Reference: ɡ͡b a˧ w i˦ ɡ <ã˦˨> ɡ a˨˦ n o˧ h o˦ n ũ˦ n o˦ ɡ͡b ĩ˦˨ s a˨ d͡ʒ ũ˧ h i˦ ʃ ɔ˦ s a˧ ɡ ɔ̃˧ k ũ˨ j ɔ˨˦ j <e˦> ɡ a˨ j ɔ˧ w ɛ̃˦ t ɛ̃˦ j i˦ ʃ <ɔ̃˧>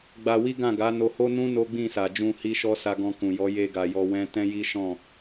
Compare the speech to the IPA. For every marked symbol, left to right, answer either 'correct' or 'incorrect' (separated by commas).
correct, incorrect, incorrect